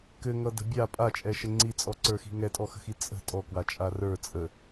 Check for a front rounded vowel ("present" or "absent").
absent